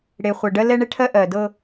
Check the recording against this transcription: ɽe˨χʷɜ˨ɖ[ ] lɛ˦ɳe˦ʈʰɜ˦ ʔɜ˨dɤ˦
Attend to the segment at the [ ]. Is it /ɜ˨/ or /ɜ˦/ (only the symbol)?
ɜ˦